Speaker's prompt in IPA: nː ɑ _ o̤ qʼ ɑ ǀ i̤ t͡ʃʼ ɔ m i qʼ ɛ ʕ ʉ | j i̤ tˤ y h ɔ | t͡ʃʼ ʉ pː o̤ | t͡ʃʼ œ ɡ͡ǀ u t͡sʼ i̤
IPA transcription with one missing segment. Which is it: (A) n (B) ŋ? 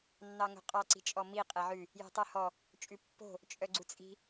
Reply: B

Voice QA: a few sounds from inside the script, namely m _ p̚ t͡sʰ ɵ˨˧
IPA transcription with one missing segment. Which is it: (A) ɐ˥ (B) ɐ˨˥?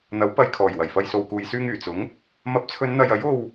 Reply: B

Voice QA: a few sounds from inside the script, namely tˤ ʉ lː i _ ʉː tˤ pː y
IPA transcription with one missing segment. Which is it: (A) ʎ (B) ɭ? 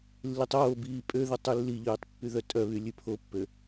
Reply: A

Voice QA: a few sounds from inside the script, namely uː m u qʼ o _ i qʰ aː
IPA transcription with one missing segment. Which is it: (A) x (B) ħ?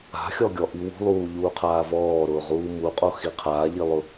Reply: A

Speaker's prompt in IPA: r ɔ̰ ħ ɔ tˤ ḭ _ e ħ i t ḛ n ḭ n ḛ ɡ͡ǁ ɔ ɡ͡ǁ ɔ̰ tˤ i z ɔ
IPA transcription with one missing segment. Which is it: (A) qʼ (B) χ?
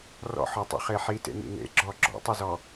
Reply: B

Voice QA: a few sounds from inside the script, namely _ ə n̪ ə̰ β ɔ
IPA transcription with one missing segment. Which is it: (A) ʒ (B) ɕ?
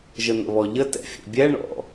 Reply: A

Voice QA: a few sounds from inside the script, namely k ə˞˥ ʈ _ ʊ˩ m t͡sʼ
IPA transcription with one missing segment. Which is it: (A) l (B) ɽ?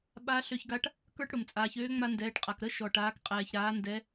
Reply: B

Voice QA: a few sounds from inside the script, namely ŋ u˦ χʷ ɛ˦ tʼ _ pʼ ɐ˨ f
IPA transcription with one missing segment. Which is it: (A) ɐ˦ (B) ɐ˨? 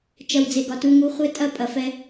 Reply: A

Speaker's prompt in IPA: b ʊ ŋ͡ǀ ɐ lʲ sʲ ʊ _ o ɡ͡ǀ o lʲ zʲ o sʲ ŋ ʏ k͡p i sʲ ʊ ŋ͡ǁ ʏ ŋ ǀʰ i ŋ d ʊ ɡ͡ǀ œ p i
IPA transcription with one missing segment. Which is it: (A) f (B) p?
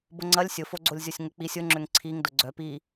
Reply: A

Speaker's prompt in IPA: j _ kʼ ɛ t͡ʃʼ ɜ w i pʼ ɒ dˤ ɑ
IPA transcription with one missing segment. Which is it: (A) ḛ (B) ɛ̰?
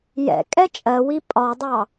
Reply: B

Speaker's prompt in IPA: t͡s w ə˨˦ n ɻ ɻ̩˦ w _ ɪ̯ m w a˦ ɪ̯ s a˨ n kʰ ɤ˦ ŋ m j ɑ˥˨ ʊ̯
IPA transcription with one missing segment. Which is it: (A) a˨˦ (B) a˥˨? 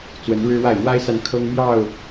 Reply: B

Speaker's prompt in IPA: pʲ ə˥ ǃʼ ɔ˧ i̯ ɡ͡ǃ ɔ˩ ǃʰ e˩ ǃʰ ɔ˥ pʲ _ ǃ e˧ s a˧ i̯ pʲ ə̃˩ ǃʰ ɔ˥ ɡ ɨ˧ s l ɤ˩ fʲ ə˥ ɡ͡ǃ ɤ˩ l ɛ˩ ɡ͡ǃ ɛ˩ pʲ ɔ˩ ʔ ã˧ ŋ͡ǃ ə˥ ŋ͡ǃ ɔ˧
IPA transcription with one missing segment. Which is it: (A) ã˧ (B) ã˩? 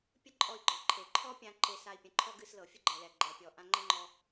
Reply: A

